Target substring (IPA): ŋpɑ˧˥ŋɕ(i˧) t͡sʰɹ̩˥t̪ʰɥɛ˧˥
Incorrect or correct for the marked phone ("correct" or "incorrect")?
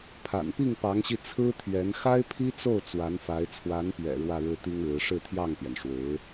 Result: correct